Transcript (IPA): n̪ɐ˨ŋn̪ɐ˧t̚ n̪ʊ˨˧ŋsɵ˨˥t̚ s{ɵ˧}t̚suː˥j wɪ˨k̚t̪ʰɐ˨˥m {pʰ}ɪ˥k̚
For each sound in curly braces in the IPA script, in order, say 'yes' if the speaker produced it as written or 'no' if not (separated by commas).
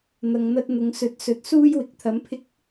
no, yes